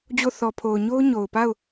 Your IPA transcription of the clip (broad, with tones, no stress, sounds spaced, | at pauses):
d͡ʑ o˦˨ θ ɔ˨ pʰ o˨ ʊ̯ ɲ o˦ ʊ̯ ɲ o˨ ʊ̯ p a˦˨ ʊ̯